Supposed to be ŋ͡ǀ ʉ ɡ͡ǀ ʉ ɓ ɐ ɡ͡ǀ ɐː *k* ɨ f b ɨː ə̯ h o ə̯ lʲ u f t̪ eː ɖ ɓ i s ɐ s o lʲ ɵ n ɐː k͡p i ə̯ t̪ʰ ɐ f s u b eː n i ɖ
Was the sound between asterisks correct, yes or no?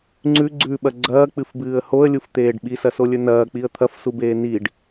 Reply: no